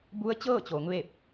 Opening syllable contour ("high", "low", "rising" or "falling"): rising